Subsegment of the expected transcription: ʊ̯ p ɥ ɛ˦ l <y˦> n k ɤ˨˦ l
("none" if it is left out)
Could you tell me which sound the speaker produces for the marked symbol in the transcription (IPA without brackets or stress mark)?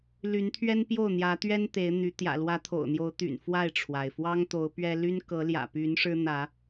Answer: y˦